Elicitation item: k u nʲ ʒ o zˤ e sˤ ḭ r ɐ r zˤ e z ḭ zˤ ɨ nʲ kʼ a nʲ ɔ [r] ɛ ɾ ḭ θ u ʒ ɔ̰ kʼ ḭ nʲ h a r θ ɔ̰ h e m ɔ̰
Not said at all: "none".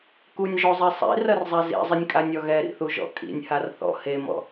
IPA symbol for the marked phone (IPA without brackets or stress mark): ɣ